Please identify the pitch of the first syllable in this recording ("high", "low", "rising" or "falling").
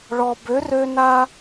low